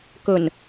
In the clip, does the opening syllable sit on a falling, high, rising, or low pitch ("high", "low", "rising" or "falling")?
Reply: low